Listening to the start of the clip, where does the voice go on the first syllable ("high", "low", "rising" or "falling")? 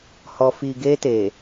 low